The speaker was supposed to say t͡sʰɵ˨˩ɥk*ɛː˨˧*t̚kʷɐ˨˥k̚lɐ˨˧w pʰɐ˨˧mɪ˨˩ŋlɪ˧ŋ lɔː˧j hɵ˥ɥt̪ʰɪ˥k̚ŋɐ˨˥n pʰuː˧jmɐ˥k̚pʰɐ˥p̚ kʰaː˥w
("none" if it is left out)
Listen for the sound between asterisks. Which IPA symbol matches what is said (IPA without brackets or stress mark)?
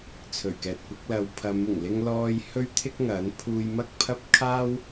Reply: ɛː˨